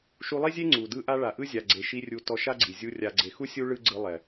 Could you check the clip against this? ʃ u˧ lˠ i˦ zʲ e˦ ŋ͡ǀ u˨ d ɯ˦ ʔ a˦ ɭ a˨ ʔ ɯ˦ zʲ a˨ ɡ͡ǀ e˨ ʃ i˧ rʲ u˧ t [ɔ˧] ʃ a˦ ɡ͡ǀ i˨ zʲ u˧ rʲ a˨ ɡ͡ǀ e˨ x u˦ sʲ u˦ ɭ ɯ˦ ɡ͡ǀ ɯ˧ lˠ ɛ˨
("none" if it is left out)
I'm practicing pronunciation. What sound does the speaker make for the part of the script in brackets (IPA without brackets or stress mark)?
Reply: ɔ˧